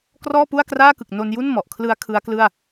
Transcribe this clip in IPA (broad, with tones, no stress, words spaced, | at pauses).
krɔː˥˩pu˥˩a̯kraː˥˩kɯ˨˩k̚ no˧nju˥˩n mɔ˨˩ʔkʰlɯ˦˥a̯ kʰɯ˦˥a̯klɯ˥˩a̯